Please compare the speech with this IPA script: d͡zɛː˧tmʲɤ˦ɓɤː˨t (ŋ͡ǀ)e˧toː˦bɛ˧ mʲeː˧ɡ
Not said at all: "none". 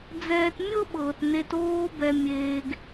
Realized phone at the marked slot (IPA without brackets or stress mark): n